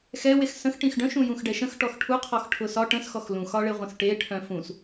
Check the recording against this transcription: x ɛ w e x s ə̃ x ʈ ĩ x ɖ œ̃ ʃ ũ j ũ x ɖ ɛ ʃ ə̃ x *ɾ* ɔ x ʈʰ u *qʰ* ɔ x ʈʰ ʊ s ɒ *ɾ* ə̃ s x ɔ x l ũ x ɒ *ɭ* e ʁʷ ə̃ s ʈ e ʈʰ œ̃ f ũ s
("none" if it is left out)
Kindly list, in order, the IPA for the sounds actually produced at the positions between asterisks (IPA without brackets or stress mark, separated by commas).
ʈ, qʰ, ʈ, ɭ